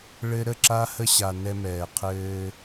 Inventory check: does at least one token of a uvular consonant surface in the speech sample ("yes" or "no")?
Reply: yes